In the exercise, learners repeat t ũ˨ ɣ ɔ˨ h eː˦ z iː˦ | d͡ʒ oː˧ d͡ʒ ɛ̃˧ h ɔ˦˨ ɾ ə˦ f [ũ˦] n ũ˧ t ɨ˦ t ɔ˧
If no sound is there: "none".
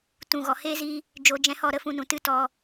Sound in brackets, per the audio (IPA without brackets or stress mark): ũ˦˨